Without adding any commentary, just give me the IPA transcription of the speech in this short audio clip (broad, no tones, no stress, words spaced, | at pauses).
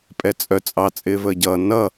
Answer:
pʼɛt͡sʼœ t͡sʼɑ t͡sʼɪːvəːɟʌː nʌ